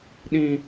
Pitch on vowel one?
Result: high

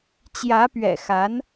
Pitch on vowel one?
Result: rising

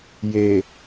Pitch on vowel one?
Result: low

